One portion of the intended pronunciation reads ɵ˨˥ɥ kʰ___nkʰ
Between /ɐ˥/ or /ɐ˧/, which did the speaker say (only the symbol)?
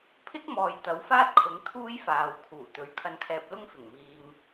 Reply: ɐ˧